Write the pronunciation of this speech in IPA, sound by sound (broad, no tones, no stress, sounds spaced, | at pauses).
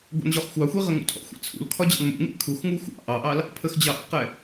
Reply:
ɡʷ ɑ̰ n ʑ ɔ χ xʷ ɑ xʷ i ʁ ə ŋ ṵ tʰ ɔ̰ xʷ ḭ t͡sʰ ṵ l kʰ ɒ d͡ʑ ɑ̰ n m ṵ ŋ ḭ kʰ u x ŋ u xʷ ɑ̰ ʔ ɑ ʔ ɑ l | pʰ ə x d͡ʑ ɑ ʔ ḭ q ɛ